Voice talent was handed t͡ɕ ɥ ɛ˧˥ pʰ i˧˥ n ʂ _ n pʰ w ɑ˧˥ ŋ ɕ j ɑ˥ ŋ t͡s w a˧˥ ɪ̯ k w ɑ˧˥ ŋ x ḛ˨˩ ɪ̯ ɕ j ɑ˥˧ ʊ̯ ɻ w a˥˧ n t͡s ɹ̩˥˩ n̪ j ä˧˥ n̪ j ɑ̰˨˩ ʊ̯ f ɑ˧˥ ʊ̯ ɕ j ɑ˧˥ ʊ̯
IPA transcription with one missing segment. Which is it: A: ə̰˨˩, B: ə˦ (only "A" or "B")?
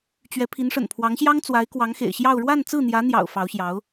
A